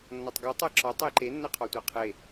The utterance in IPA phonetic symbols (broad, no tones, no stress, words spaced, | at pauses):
nːɒtˤɡɒ tˤɜǁɒ tˤeǃe nːɜqʰɔtʷɜqʰe